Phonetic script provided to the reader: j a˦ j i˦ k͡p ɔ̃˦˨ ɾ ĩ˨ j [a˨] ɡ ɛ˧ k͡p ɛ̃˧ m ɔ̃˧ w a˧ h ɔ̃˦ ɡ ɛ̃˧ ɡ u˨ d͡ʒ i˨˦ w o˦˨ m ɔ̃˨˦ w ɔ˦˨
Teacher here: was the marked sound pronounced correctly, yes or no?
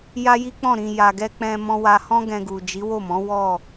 yes